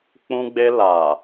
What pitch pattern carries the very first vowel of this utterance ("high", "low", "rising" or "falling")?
high